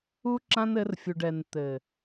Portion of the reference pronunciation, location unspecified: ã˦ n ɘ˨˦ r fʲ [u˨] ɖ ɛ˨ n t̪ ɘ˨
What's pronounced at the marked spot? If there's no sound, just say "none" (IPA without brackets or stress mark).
u˨